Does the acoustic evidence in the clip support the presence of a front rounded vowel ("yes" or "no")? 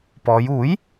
no